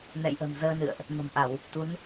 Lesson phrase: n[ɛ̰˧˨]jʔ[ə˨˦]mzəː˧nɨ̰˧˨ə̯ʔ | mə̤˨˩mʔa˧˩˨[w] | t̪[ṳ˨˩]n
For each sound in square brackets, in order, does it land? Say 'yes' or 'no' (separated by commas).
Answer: yes, no, yes, no